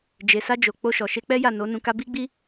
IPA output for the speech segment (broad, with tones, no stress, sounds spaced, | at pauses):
d͡ʒ e˨ s a˧ d͡ʒ o˨ k͡p o˧ ʃ ɔ˨ ʃ e˧ k͡p ɛ˦ j a˦˨ n o˨˦ n ũ˧ k a˦ b i˦ ɡ͡b i˦